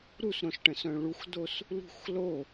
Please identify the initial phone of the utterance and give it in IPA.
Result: ɾ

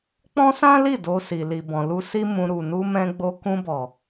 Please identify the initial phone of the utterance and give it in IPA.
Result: k͡p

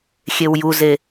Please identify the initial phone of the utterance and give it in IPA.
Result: xʲ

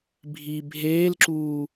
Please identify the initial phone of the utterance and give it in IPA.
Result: bʱ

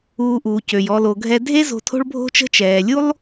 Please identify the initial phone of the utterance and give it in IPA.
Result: uː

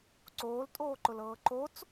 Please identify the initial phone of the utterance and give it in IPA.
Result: ǀ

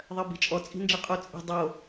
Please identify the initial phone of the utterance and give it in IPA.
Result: ðˤ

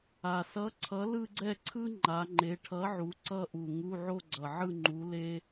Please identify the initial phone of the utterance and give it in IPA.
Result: a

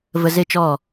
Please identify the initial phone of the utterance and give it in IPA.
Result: v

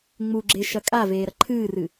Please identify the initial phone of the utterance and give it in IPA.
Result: ŋ͡m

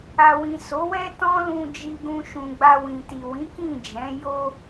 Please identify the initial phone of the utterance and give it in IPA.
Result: a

